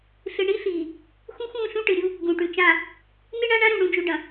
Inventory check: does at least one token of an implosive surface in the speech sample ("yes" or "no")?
no